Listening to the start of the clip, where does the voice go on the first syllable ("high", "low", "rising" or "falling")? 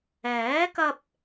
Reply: rising